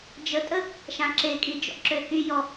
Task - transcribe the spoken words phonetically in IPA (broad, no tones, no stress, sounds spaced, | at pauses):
d͡ʒ ə tʼ ə | ʃ ã ǁ e kʼ i d͡ʒ ɔ̰ ǁ ø h y j ɔ